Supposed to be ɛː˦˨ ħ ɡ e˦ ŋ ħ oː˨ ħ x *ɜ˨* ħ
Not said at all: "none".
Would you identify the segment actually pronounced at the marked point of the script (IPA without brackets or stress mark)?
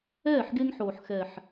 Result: ɛ˨